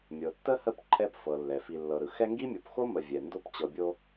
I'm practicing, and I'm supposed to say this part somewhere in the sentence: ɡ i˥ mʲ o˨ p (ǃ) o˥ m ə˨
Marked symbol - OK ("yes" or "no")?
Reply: no